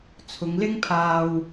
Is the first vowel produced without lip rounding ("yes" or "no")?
no